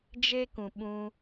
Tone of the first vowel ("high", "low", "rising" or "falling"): high